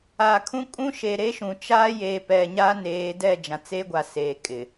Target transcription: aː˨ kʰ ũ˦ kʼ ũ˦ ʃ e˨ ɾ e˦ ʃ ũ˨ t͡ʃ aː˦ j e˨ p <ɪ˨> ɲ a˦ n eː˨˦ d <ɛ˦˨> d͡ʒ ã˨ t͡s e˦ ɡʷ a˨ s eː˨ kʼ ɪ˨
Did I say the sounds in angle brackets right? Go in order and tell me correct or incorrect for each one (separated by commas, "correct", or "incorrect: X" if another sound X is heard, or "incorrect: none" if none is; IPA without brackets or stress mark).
incorrect: ɛ˨, correct